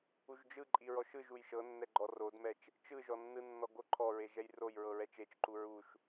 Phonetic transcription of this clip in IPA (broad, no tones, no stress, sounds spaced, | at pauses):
u ʒ d͡ʒ ɯ ǃʼ i ɹ ɔ ʃ ɯ ʒ u j ʃ ɤ nː ɛ ɡ͡ǃ ɔ r o d m ɛ t͡ʃ | t͡ʃ ɯ ʒ ɔ nː ɯ nː ɔ ɡ o ǃʰ ɔ ɹ e ʒ ɛ j r o j ɹ ɤ ɹ ɛ t͡ʃ e t͡ʃ ǃ u ɹ u ʃ